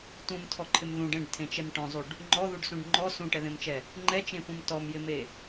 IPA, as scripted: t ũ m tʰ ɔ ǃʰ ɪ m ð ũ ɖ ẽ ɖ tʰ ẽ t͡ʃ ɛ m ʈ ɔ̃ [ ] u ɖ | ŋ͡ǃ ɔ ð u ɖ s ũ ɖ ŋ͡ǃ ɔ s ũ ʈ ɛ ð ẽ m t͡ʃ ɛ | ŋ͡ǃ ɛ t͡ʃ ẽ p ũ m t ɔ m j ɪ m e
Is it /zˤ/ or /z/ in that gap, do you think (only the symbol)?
zˤ